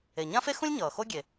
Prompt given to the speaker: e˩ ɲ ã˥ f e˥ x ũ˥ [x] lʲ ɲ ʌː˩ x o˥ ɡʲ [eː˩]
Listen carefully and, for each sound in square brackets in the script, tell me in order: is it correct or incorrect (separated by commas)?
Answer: incorrect, incorrect